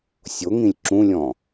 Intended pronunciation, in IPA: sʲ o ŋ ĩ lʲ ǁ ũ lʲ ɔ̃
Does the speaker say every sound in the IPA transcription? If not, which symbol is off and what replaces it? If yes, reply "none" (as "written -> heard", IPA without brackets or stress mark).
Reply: none